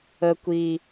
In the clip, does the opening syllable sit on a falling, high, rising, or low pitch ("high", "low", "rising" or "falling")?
low